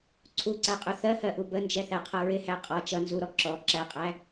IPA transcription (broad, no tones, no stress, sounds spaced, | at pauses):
ǀʰ u ǀ æ qʼ u θ ɜ h ɜ ʔ u b ə n d͡ʒ ɛ θ æ qʰ ʌ ɹ ɪ h æ qʼ ɔ t͡ʃ ʌ n z u ɾ ɔ ǁ ɔ ǁ æ qʼ æ